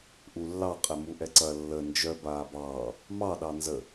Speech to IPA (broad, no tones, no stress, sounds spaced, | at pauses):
ʔ u lː ɑ qʼ ɛ m u ʔ ɛ ǀ ɐ lː ə n d͡ʒ œ b aː b ɑː | m ɑ ɗ ɑ n z ə